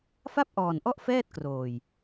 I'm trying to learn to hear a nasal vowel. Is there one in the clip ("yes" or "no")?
no